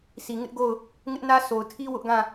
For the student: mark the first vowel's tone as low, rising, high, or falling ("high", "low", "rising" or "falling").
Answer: low